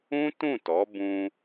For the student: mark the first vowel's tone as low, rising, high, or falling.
high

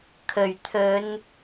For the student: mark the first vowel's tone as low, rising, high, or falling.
low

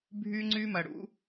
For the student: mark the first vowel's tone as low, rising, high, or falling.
high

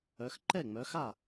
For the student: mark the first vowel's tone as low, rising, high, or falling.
rising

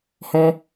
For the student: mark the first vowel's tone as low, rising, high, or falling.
high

